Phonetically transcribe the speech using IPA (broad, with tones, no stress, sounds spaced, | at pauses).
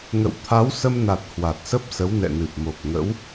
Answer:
ŋ ə̰˧˨ w t̪ʰ a˨˦ w s ə˧ m n a˨˩ t̚ h w a˨˩ t̚ s ə˦˥ p̚ s ə˨˦ w n ɛ̰˧˨ n ɨ˨˩ p̚ m o˨˩ k̚ ŋ ə̰˧˥ w